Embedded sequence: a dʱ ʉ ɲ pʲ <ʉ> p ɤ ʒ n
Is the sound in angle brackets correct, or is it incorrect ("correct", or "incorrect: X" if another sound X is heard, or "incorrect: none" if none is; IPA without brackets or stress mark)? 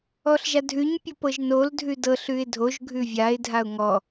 incorrect: u